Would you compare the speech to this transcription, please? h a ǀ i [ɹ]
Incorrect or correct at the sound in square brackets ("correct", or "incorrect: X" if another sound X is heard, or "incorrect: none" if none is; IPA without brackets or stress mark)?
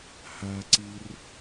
incorrect: r